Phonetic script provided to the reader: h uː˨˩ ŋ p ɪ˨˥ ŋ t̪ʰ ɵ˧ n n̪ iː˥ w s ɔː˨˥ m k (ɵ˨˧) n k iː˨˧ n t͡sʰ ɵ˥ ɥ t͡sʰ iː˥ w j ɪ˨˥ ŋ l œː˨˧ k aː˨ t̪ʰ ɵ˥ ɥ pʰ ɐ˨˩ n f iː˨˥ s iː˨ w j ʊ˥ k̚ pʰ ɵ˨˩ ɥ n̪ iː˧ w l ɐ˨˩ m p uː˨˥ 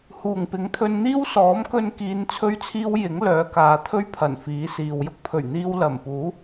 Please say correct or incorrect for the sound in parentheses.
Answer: incorrect: ɵ˧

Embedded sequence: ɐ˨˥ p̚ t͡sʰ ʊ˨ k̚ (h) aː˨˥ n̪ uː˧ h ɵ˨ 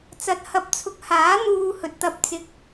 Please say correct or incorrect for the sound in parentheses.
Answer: correct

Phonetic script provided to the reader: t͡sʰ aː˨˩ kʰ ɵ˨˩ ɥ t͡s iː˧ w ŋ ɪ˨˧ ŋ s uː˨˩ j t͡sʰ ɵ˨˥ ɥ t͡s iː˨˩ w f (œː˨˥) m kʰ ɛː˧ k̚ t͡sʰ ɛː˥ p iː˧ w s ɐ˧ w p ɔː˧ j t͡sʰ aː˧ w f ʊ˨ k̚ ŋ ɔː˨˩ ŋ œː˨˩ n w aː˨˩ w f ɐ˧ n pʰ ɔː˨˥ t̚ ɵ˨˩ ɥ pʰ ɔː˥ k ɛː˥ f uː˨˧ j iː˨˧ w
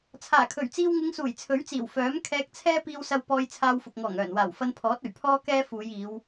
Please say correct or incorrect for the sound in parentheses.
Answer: correct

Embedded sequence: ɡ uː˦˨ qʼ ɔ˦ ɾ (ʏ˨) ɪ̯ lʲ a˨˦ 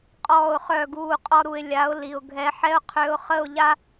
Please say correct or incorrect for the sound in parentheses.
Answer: incorrect: u˨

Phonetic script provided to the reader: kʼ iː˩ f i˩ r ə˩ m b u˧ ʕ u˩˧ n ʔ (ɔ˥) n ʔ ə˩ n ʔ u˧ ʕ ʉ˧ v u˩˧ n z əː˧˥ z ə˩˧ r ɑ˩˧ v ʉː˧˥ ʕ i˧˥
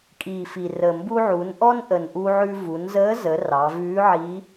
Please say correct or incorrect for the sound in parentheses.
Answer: correct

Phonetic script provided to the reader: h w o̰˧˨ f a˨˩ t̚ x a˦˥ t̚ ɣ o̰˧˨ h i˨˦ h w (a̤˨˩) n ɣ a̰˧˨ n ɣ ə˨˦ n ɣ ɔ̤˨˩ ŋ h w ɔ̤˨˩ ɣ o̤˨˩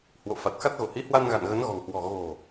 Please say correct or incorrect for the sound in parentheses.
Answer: incorrect: a˧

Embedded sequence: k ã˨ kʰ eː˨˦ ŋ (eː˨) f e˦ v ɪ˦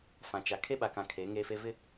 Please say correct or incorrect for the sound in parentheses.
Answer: incorrect: eː˦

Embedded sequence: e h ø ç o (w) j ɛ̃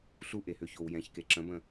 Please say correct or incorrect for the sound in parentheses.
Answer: correct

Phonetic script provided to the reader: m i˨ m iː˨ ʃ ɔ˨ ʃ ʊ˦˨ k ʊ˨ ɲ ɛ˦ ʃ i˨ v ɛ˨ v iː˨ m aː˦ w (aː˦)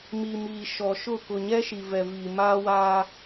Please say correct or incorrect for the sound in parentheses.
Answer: correct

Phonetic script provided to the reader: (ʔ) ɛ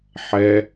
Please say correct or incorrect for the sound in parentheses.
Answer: incorrect: ħ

